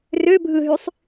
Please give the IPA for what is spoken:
r ø bʱ ɯ ɦ y sˤ

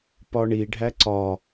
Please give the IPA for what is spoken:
p ɒ ɳ i ɖʱ æ ǀ ɒ

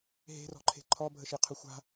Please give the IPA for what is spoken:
ɦ e̤ r ɔ̤ ǃʰ e̤ ǃʰ ɔ bʱ ə ʃ i qʰ ʊ xʷ a̤

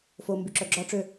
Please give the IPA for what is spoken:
f o m b y ǁ œ ɡ͡ǁ ɔ ʈ͡ʂ ø

